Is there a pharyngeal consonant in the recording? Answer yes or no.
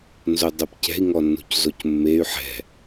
yes